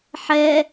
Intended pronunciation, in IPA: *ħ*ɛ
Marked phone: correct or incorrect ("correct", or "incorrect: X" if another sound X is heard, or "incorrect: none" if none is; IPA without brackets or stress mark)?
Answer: correct